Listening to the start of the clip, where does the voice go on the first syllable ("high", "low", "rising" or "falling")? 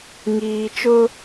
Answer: low